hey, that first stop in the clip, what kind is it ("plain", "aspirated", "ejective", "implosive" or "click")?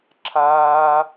click